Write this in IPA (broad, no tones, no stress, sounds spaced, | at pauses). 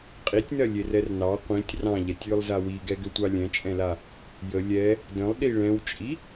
qʼ i tʲ n ɜ lʲ e r ɛ r n ɑ qʷ ĩ tʲ r ɑ̃ ʎ ɛ tʲ j ʏ lˠ z a w i ɡ ɛ ɡ ʏ tʷ ɑ lʲ ɛ̃ t͡ʃʼ ɛ̃ l a | j ə lʲ ɛ | d ə̃ lˠ ɗ i ɭ ɛ̃ w t͡ʃʼ i